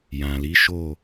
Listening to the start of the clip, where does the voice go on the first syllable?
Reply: low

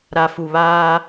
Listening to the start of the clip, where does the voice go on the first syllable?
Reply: low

